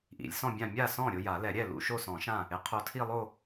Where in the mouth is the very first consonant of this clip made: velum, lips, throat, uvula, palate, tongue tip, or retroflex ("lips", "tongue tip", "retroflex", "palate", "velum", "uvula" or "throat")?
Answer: throat